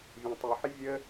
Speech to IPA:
vʲɛ̃tˤɯħɪ vʲə

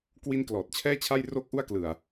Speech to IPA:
kwi˥˩n klɔː˨˩t̚t͡ɕʰɛː˥˩t͡ɕʰa˥˩jroː˥˩k̚ ʔu˥˩a̯klɯ˨˩a̯

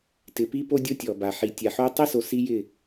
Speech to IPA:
tɪ˨˦pi˦po˦ dʲo˦tʲɔ˨ba˨ ħi˨ tʲa˨ħo˦ tˤi˦so˨ si˦jɪ˦˨

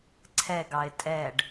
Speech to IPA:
ǀʰɛɡɑɪ̯ tʼɛɖ

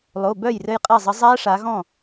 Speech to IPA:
lˠo˩˧˩bœ˥˩jrɘ˧j qʼɛ˥˩zˤə˨˥ zˤæ˦˥ʂa˩˧ɣɔ̃˥˩

